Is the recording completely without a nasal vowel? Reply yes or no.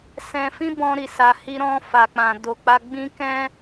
no